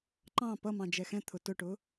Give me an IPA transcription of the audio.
ǃ ɑ̃ p ʌ m ɑ̃ d͡ʒ ɛ x ɛ̃ t̪ʰ ʊ t ʊ ʈ ʊ

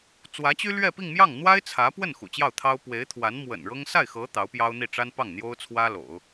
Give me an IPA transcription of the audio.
t͡s w ä˧˥ t͡ɕ y˥ l ɥ ɛ˥˧ p i˥˧ ŋ m j ɑ˥˩ ŋ n̪ w a˥ ɪ̯ t͡sʰ ä˧˥ p w ə˥˩ n x ṵ˨˩ t͡ɕ j ɑ˥˩ ʊ̯ t̪ʰ ɑ˥ ʊ̯ p w e˧˥ ɪ̯ t̪ʰ w a˧˥ n m w ə̰˨˩ n ɻ ɤ˥ ŋ s a˥˩ ɪ̯ x ɤ˧˥ t̪ ɑ˧˥ ʊ̯ p j ɑ˥ ʊ̯ n̪ i˥˩ ʈ͡ʂ a˥ n p ɑ˥˩ ŋ n̪ j o˥ ʊ̯ t͡sʰ w ä˥ l o̰˨˩˦ ʊ̯

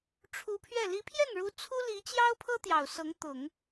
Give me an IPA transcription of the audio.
ʈ͡ʂʰ u˧˥ pʰ ɥ ɛ˥˩ l i˧˥ pʰ j ɛ˥˩ n ɻ u˧˥ t͡sʰ u˥ l i˧˥ t͡ɕ j ɑ˥ ʊ̯ pʰ ɤ˥ t̪ j ɑ˨˩ ʊ̯ s ɤ˧˥ ŋ t̪ ʊ˨˩˦ ŋ

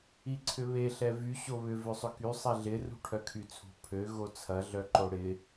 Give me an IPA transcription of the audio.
i ǀʰ ʏ β e ɬ ɛ v y ɕ o β ʏ v ø sˤ ʏ k y sˤ ɛ ɮ ɪ r ṳ ʈʰ œ kʰ y t͡sʰ ṳ pʰ ø ɣ o t͡sʰ ɐ ɮ œ ǃ o ɽ ɪ

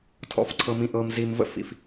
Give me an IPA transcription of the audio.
tʰ ɔ̰˨ f ǀʰ ɤ˨ m ĩ˨ ʔ ɤ˨ m z i˨ m v ə̰˦ f ḭ˨ f

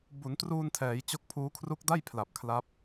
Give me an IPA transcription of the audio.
b u˩˦ n t r uː˧ n tʰ ɛː˩˦ j t͡ɕ o˦˥ k̚ pʰ uː˦˥ kʰ r u˦˥ k̚ d a˥˩ j pʰ l a˨˩ p̚ kʰ l a˦˥ p̚

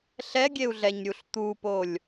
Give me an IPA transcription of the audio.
ɬ ɛ ɡʲ e u̯ ɮ ɛ ɲ ɾʲ u ɬ t̪ u p o lʲ

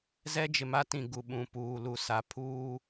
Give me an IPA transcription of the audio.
z ɛ˦ d͡ʒ ɪ˨ m a˦ t ĩ˨ ɡ u˨ ɓ ũ˨ p uː˨ l u˨ s a˨ pʰ uː˦

